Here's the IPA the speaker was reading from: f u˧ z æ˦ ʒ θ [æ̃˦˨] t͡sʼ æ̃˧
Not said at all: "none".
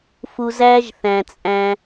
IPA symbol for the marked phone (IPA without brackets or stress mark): æ̃˨